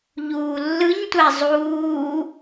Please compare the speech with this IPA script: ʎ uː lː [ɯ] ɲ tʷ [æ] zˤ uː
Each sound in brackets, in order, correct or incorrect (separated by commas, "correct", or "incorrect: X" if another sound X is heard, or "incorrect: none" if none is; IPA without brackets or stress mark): correct, correct